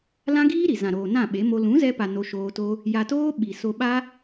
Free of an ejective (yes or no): yes